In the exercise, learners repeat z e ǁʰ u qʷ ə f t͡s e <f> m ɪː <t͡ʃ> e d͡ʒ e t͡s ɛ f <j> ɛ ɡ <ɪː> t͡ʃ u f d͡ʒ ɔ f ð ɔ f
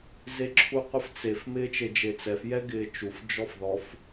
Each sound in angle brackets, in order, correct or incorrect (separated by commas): correct, correct, correct, correct